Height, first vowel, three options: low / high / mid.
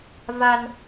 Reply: low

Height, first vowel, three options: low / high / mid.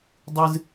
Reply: high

